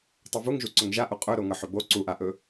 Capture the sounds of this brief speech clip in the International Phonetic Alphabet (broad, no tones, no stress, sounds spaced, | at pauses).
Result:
tˤ o v u ŋ ʒ u ǀ ɵ ŋ ʒ a ʔ u qʼ ɵ ɾ o ŋ ɤ ħ ɵ b o ǀ u ʔ a ʔ ɵ